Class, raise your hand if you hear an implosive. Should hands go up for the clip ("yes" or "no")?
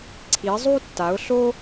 no